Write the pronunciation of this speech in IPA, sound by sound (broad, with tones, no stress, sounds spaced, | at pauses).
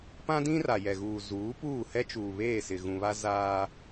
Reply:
p ã˦ d ĩ˦ r a˨ j ɛ˨ ɣ uː˨ z uː˨˦ p uː˦˨ h ɛ˦ t͡ʃ uː˨ β eː˦˨ s ɪ˨ ɣ ũ˨ β a˦ z aː˦